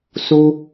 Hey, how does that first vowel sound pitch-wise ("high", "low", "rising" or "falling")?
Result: high